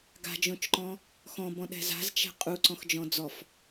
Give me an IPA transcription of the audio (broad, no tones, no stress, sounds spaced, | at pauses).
ɡ a̤ d͡ʒ õ t͡ʃ ǃ ɔ̃ | x ɔ̃ b ɔ̃ ɗ ɛ̤ z a̤ z t͡ʃ ɛ̤ qʼ u ǀ ɔ̃ x d͡ʒ ɔ̃ d͡z ɔ f